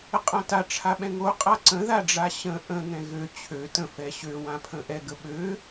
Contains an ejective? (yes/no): yes